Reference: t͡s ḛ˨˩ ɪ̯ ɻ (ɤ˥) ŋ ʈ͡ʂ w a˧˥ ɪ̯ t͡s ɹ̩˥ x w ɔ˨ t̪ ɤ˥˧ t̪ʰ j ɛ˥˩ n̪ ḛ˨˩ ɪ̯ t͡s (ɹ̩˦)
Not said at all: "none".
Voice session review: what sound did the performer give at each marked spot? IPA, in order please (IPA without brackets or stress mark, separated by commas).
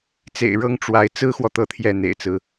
ɤ˥, ɹ̩˦